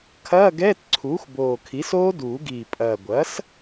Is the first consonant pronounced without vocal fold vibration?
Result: yes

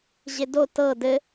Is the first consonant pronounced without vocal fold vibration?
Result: no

